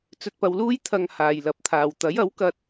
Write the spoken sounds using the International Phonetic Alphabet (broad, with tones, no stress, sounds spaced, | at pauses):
t͡s ɵ˨ t̚ p ɐ˨ w l uː˧ j t̪ʰ ɐ˨ ŋ h aː˨ j l ɐ˨˥ p̚ t̪ʰ aː˨ w t̪ ɐ˨˥ j ɐ˨˥ w k ɐ˧ t̚